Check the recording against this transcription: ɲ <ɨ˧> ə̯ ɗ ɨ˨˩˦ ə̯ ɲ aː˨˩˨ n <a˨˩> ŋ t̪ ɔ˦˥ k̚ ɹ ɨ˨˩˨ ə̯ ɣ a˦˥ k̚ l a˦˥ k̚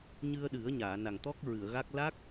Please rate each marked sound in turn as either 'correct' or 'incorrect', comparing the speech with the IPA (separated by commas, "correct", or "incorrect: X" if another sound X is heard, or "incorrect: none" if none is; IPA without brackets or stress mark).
correct, correct